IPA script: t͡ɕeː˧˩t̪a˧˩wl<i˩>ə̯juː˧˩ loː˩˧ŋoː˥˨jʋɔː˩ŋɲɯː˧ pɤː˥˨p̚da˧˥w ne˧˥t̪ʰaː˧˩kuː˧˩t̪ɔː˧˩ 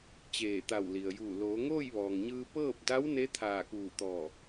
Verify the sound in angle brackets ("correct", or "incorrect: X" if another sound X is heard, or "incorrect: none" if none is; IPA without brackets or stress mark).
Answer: correct